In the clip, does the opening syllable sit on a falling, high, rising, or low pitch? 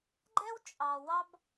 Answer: high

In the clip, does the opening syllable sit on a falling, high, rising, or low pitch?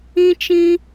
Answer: high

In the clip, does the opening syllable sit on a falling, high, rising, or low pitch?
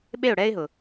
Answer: falling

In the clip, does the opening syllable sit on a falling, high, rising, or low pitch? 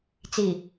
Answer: low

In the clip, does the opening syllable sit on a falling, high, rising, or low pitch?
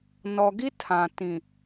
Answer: low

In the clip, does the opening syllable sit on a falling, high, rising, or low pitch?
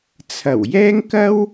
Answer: low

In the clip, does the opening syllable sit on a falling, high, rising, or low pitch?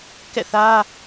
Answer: falling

